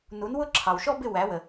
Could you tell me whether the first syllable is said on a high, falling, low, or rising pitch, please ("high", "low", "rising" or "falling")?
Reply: rising